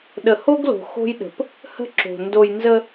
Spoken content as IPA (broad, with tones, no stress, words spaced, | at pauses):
ɗə˨ho˦ɡlo̤˨ xo̤˦jɗə̤˨p | hə̤˦ǁo̤˨ ndo˨j nzə˦